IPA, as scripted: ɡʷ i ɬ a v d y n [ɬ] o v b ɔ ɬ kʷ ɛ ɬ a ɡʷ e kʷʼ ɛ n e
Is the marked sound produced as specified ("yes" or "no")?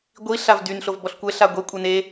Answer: yes